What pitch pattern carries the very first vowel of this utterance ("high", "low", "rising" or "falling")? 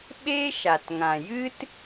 high